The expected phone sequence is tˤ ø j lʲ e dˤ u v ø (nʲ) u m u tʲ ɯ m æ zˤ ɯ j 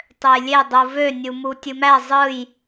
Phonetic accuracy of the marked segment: correct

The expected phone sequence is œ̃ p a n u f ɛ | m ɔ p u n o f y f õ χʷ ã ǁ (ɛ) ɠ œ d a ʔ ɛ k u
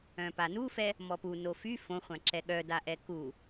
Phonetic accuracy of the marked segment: correct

